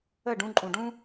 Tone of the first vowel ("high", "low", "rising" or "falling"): falling